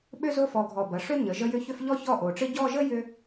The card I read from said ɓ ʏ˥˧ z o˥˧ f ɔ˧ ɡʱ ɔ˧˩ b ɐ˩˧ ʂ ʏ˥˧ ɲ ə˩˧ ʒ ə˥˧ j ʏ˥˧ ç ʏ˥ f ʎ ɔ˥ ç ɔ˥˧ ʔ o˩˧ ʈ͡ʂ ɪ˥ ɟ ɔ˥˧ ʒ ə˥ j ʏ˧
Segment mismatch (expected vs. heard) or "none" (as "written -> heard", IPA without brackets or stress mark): none